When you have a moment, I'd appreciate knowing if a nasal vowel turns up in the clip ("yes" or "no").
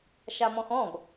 yes